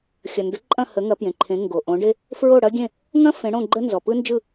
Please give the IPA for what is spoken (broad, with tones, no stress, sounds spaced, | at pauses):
xʲ ɐ˩ n d ə˩˥ ǃʼ ɐ̃˥˩ h ə˩˥ ŋ ɐ˩˥ p j ẽ˩ ǃʰ ẽ˩˥ ŋ ɡ o˩ ʔ õ˩˥ ɖ e˥ | f ɹ o˥˩ ɽ ɐ˥ ɡʲ ẽ˥˩ | ŋ ɐ̃˥ f ẽ˩˥ ɽ õ˥˩ ɡ͡ǃ ə˥ n z ɔ˩ p ɯ˥ n d͡ʒ ɯ˥˩